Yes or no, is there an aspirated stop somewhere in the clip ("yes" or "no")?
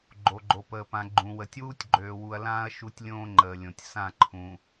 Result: yes